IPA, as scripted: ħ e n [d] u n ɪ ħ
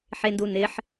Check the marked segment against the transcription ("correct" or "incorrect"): correct